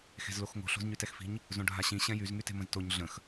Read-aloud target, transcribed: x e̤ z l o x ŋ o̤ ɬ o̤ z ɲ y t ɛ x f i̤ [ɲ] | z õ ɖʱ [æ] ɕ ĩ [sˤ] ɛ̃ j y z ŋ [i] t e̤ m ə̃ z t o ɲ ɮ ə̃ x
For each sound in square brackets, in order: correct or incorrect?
correct, incorrect, incorrect, incorrect

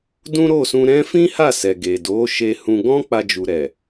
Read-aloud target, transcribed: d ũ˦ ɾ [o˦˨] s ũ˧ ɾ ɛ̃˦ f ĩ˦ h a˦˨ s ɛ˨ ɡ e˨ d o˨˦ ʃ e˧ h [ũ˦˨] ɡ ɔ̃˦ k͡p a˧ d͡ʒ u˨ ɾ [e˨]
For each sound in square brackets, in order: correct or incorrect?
correct, incorrect, incorrect

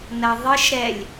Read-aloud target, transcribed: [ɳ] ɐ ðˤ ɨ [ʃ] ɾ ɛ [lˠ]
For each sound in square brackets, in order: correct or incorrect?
incorrect, correct, incorrect

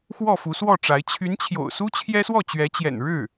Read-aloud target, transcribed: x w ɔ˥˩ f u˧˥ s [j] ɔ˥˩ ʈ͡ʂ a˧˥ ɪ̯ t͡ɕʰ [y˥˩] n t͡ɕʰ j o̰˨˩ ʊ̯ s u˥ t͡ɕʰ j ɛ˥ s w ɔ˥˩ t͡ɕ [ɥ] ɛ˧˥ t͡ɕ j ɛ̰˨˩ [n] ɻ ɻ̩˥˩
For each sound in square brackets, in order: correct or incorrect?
incorrect, incorrect, correct, correct

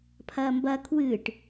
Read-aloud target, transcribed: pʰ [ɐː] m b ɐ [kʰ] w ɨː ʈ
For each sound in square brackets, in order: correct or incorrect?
correct, correct

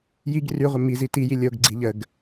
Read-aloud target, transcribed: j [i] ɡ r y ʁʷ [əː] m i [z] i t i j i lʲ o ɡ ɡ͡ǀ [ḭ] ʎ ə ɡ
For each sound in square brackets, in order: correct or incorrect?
correct, incorrect, correct, incorrect

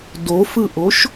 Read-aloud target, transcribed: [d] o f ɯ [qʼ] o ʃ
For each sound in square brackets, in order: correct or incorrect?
correct, incorrect

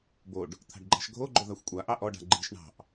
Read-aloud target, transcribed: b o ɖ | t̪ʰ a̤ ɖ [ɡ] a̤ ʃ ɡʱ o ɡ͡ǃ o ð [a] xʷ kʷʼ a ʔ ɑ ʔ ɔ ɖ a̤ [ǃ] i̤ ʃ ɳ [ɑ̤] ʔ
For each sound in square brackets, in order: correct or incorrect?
incorrect, correct, incorrect, correct

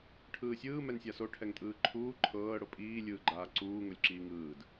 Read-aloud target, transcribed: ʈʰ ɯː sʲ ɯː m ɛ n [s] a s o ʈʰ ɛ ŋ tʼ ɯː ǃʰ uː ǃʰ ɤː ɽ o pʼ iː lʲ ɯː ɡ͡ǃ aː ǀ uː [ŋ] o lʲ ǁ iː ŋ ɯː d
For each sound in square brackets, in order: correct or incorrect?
incorrect, correct

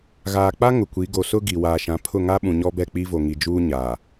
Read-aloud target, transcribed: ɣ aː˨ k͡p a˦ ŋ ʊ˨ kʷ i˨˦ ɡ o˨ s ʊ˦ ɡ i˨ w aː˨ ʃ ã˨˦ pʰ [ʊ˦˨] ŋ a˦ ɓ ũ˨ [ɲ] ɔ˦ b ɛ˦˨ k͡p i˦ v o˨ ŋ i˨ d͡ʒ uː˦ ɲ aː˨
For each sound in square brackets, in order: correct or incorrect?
correct, correct

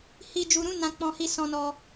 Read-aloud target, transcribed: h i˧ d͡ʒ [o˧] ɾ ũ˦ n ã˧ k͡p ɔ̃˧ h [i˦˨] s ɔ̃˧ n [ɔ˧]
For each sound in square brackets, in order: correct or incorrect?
incorrect, incorrect, correct

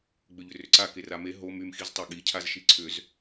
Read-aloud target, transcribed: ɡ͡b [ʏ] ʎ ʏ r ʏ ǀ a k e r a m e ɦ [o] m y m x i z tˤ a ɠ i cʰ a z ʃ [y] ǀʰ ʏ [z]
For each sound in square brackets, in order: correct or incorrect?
correct, correct, incorrect, correct

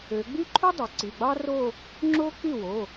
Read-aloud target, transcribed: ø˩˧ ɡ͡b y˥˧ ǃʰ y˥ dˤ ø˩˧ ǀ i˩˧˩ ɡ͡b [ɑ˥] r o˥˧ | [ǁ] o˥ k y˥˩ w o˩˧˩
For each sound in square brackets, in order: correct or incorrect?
correct, incorrect

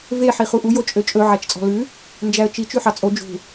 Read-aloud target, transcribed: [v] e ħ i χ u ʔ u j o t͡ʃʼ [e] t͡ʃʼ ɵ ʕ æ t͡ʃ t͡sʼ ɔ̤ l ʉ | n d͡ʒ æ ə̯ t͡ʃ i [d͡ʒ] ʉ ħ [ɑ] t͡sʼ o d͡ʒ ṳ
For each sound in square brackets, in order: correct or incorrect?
correct, incorrect, incorrect, correct

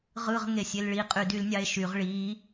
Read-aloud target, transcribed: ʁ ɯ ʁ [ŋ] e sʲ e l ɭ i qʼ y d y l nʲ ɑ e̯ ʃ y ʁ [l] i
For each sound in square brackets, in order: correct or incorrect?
correct, incorrect

